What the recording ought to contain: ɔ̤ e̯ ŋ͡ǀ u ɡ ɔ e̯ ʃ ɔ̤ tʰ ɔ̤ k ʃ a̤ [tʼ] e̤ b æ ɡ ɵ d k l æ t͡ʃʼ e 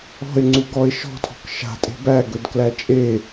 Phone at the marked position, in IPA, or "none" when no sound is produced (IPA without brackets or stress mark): tʼ